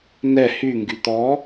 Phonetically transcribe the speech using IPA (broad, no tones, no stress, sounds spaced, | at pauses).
n ɛ h y ŋ ɡ y t̪ ɔ